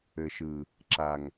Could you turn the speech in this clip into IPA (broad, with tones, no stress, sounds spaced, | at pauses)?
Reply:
ɘ˨ ʃ ɯ˨ | ǁ a˨ ŋ